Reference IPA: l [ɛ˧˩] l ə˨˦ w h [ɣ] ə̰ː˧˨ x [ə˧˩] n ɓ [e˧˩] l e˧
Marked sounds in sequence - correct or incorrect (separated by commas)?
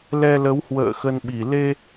incorrect, incorrect, incorrect, incorrect